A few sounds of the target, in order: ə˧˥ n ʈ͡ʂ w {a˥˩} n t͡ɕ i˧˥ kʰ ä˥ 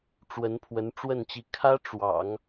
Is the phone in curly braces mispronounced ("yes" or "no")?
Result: yes